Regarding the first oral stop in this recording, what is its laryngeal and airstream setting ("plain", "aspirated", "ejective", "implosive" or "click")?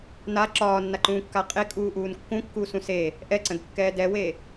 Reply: click